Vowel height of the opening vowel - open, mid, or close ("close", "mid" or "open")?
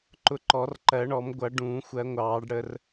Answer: close